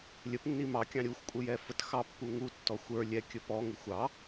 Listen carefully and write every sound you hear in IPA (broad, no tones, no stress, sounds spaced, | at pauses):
lʲ ə p nː i m ɑ kʲ ɑ̃ ɾʲ u xʷ kʷʼ ə j ɛ f ə t x ɑ pː u ŋ u tː ɔ xʷ ə˞ lʲ ɛ kʲ ə p ɔ ŋ ɪ xʷ ɑ